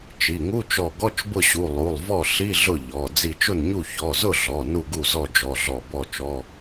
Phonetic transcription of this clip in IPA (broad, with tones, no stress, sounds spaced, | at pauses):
t͡ʃ i˩˧˩ ŋ u˧˥˧ t͡ʃ ɔ˧˩ ɡ ɔ˧˥˧ t͡ʃ b ʊ˥˩ ɕ u˩˧˩ lˠ u˩˧˩ lˠ v ɔ˥˩ ɬ i˧˥˧ ɮ ʊ˥˩ ʎ ɔ˩˧˩ d͡z i˧˩ t͡ʃ ʊ˥˩ n ɲ u˥˩ ç ɔ˩˧˩ z ʊ˥˩ ɮ ɔ˩˧˩ n u˥˩ ɡ u˥˩ z ɔ˥˩ d͡ʒ ɔ˩˧˩ ɮ ɔ˧˩ b ɔ˥˩ t͡ʃ ɔ˧˥˧